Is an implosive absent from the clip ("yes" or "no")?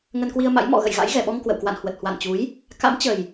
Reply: no